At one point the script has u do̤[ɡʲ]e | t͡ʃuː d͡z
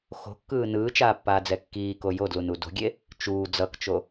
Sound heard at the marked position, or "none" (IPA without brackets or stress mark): ɡʲ